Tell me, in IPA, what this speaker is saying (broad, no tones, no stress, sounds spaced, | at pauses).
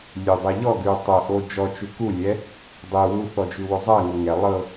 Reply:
lʲ ʉ dˤ ɪ ʎ ɔ ɡ ʉ tˤ ɤ ʔ o d͡ʒ ɔ t͡ʃ ʉ k u lʲ ɛ | dˤ ɪ w u θ ɔ d͡ʒ ʉ w o zˤ ɐ ŋ ɤ ŋ ɛ lˠ ɤ